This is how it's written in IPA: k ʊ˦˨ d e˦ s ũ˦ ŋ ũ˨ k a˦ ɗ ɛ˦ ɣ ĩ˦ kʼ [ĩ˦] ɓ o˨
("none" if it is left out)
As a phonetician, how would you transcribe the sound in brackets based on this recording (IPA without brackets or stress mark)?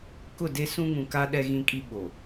i˦